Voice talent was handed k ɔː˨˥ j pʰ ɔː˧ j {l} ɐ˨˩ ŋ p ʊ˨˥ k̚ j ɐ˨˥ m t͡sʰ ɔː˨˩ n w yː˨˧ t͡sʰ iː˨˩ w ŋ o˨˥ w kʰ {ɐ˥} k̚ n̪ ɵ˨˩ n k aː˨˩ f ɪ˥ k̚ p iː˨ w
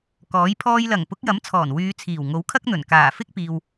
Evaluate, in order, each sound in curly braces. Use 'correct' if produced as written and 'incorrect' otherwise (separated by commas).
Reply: correct, correct